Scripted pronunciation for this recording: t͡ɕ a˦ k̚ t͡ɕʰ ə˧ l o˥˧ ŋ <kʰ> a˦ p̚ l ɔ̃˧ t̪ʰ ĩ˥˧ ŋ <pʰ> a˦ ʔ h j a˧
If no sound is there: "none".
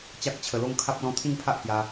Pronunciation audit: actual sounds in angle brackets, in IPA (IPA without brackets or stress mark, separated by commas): kʰ, pʰ